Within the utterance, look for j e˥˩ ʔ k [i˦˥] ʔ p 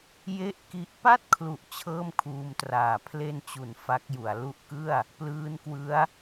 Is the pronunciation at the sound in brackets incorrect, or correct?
correct